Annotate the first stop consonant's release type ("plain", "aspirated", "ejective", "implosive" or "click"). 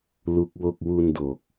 plain